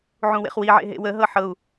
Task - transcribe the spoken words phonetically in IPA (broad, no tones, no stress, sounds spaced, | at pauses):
ʕ ũ w ḛ χ w i ʕ ḛ ɦ ḛ w ə ɦ ɤ ħ ɤ u̯